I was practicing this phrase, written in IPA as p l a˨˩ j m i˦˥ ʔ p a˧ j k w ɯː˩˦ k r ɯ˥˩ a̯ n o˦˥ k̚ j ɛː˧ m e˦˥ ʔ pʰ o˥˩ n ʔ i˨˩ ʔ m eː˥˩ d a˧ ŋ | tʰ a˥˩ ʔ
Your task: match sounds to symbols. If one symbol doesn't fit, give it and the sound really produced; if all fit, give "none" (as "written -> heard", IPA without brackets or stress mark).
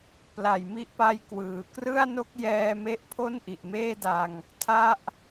none